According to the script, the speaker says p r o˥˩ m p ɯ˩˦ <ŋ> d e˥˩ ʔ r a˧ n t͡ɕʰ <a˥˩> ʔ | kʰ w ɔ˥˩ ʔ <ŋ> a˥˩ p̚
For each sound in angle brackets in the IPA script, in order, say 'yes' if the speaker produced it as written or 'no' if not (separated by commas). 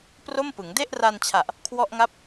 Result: yes, no, yes